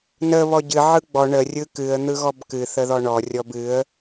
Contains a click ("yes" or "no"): no